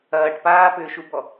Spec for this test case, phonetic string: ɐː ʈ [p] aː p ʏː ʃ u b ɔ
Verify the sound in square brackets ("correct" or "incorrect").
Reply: correct